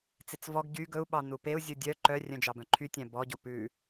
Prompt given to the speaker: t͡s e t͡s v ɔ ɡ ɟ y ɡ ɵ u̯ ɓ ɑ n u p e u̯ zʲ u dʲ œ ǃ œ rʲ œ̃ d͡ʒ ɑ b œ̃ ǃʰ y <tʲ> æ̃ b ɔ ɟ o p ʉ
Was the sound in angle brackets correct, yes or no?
yes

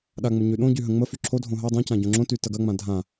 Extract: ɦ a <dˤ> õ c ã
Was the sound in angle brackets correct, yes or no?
yes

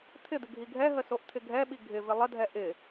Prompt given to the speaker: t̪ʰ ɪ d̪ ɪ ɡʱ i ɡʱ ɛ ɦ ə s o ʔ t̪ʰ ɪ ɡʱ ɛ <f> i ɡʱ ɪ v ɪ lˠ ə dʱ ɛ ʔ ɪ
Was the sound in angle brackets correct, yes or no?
no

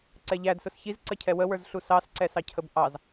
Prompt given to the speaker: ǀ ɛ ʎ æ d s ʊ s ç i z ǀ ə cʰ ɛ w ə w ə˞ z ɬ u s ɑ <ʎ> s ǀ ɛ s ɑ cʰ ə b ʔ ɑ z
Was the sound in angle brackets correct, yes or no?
no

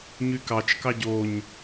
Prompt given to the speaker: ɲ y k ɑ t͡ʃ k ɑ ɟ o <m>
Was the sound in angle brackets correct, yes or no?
no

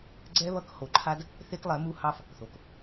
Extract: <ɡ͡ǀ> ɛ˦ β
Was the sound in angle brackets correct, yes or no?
yes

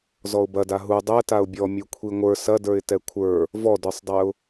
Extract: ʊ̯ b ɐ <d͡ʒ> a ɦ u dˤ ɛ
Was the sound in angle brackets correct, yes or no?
no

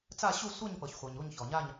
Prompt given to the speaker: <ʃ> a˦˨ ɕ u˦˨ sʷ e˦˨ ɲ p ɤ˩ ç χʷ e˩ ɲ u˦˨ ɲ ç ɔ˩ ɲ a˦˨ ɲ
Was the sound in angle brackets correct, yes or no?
no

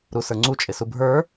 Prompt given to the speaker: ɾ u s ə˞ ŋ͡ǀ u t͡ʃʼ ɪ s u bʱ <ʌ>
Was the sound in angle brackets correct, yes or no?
no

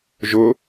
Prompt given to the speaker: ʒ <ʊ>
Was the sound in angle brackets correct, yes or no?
yes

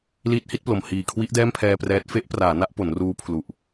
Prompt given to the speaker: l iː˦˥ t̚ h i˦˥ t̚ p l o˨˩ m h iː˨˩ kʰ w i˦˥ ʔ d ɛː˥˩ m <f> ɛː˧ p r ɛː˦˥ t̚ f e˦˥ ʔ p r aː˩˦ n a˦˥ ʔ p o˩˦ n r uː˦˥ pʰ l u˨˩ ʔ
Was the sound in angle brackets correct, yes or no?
no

